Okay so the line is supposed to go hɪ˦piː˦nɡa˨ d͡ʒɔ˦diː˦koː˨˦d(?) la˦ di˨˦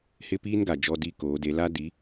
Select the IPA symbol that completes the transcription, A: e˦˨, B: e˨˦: B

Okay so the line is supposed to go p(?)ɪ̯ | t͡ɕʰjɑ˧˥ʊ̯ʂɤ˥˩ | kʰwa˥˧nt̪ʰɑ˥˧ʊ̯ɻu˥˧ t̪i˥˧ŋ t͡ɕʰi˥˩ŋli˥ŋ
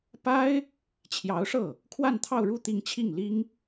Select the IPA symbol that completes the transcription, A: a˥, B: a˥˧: A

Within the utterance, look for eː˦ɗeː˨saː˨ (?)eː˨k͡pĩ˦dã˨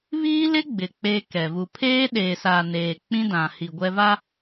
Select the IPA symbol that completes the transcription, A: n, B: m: A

